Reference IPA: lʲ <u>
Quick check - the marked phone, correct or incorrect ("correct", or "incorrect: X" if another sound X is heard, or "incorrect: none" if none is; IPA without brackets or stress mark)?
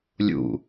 incorrect: ṵ